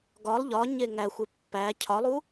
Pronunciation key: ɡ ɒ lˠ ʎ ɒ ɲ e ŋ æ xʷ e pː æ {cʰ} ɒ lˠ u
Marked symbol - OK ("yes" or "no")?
yes